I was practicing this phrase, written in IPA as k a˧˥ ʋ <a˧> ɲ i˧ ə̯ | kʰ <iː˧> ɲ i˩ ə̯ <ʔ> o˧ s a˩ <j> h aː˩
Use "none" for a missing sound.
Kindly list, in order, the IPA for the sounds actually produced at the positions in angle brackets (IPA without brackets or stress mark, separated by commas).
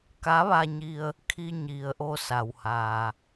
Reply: a˧, i˧, ʔ, w